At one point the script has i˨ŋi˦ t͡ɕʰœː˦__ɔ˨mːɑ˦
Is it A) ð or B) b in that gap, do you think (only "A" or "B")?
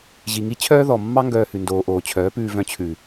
A